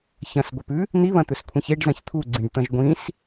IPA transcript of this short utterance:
ç ɐ̃ s ɡʷ ɐ p ʉ | n̪ i β ɐ̃ t̪ ɵ s kʷʰ ĩ ç e ɖ z ɐ̃ ç t̪ʰ u ɡ͡ǀ ĩ ɖ t̪ ɐ̃ ʒ ɡʷ ĩ s

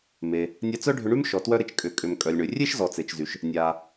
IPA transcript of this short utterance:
m e˩ | nʲ a˧ t͡s œ˥ ɖʱ ʏ˧ ɳ y˥ m ʃ ɔ˩ t w œ˧ ɾ ɪ˩ t͡ʃ kʼ ʏ˩ kʼ ʏ˩ m kʼ œ˩ lʲ ɳ ʏ˩ rʲ e˥ ʃ z ɔ˩ t͡s e˩ t͡ʃ z y˩ ʃ | nʲ aː˩

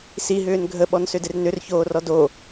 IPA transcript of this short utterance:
s i ɦ ʏː n ɡʱ ə ɓ ɔ n s ʏ d ɪ r n ʏ r ç oː r ɔ d o

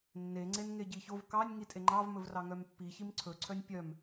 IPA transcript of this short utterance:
nː e ŋ͡ǀ e n ŋ e ɟ i ç o v k ɑ nʲ ŋ i tʼ e ŋ͡ǃ ɑ v m ɵ v r ɑ ŋ œ m pː i ç i m ǀʰ ɵ ǀʰ œ nʲ pʲ œ m

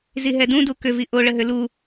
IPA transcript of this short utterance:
z i ɦ ɛ d ũ d u k ʏ v i ʔ o ɭ ə ɦ ʏ l u

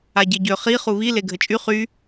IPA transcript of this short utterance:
a ɟ e ɟ ø χ i χ u β i l e ɡʱ ə t͡ʃʼ y χ y

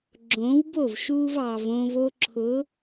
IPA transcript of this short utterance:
ɡ͡ǁ õː˨˦ w b o˦˨ v ʃ uː˧ v ɑ˨ v õː˧ v o˧ ǁʰ ʊ˨˦

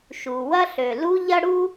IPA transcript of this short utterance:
ʃ u˩ w ɐ˥ ɬ ø˩ l u˥ ʎ ɐ˥ ɽ u˥

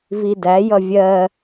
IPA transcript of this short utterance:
v i d æ j ʌ vʲ ɜ

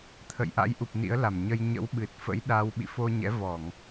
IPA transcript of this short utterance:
t̪ʰ ə̰˧˨ j ʔ a̰˧˥ j ʔ u˨˩ p̚ n ḭ˧˥ ə̯ l a˧˩ m ɲ ə˧ j ɲ ə̰˧˥ w ɓ ɨ˨˩ t̚ f ə̰˧˥ j ɗ a˧ w ɓ ḭ˧˨ f o˧ ɲ ɛ̰˧˥ v ɔ˧˩˨ ŋ

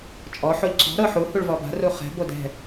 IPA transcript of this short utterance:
t͡ʃʼ ɔ ħ o ʎ ǀ ɔ̤ ɾ ɤ ħ u h u ɭ v ɔ b a̤ r u χ ɛ̤ b o d ɛ̤

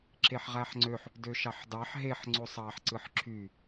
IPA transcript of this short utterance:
ǁ e ħ ʁ æ ħ ŋ͡ǀ ø ħ | d ø ʃ ɑ ħ d ɑ ħ ɦ e ħ ŋ͡ǀ o sˤ ɑ ħ ǀ ɯ ħ ǁʰ y

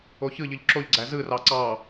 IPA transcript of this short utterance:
o ç ɯ ʎ ɯ ʎ ǁ o ʎ ɡ͡ǀ æ z ɯ r ɑ ǀ ɑ

